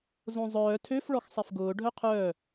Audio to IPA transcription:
zõzˤœː tʰøf ɭɔxsˤefɡʊː ɖʱœqʰœː

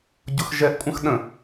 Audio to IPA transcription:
ɟʊxʒɛʔkʷʼə̃x ɗə̃

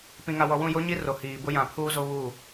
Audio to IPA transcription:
pĩ˨ŋa˨wɔ˨wũ˦˨ jo˦ɲi˦ro˨ hiː˨bʊ˦jã˨pʰuː˦ zo˦βu˦˨

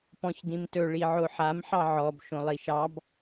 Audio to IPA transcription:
pɔ̃çdĩmtɵ ɭiʕoħam ħɑʕɔb ʃõlˠiʃɑb

